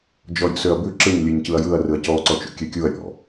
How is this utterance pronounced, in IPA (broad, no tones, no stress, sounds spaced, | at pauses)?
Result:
d͡ʒ ɔ ɾʲ ṵ s ø ɐ̯ b ʉ ǁ ɯ ɲ lʲ ɨ ɲ c ɯ ɐ̯ j ɯ ɐ̯ r ɯ ɐ̯ c ɔ ǀ ɔ t͡ʃ ṵ kʲ ø kʲ u ɐ̯ ɾʲ ɔ̰